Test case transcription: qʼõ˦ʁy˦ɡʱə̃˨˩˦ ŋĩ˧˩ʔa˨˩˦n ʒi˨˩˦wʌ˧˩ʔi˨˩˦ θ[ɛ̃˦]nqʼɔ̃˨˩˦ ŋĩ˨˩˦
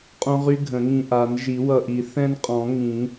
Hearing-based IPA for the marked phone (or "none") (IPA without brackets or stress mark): ɛ̃˦